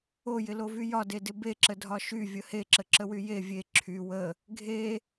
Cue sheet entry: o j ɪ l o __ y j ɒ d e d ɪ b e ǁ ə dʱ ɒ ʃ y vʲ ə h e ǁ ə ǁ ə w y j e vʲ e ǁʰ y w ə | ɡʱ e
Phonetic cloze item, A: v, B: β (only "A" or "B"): A